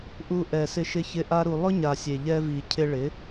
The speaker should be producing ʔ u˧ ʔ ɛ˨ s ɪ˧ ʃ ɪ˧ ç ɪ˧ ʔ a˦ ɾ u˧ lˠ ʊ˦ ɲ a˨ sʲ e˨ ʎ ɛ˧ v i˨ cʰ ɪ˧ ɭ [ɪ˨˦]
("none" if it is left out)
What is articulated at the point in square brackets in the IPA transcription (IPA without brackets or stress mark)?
ɪ˨˦